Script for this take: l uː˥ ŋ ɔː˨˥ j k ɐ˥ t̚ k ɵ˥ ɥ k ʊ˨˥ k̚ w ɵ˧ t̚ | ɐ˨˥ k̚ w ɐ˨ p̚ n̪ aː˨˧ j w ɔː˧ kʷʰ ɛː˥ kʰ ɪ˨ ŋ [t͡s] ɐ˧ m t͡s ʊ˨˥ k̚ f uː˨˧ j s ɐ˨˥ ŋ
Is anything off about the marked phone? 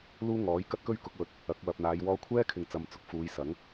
no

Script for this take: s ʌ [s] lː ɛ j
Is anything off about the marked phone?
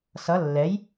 yes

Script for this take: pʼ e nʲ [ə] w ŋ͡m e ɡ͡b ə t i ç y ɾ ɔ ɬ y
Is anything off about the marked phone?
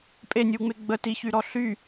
yes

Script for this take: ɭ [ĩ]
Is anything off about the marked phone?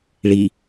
yes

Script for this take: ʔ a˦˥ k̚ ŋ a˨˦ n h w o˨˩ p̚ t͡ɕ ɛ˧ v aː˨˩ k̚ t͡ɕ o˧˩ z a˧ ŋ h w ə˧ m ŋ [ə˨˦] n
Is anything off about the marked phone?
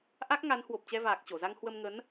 no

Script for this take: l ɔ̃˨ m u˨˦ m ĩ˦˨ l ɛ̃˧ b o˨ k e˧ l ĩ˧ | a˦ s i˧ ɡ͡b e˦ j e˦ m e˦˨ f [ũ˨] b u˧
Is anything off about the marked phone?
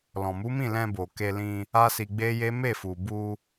yes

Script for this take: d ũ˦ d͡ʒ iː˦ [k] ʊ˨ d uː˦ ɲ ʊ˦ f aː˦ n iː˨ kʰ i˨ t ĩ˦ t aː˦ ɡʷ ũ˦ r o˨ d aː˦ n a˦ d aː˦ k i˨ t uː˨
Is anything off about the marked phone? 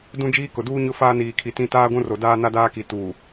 no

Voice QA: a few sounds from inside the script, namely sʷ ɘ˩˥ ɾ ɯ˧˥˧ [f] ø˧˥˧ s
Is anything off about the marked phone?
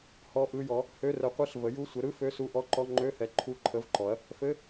no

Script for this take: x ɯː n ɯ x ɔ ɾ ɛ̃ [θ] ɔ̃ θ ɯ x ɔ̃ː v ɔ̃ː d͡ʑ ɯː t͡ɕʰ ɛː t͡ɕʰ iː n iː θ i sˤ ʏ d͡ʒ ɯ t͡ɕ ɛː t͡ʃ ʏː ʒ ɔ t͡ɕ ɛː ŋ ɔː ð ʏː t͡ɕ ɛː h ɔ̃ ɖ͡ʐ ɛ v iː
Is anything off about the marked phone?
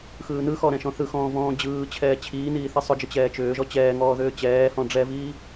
yes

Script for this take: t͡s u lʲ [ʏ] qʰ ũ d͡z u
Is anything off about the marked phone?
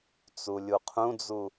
yes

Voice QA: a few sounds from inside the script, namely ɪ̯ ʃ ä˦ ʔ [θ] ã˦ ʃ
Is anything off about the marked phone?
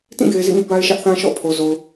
no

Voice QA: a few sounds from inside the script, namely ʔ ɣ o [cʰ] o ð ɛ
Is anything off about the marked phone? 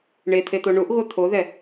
yes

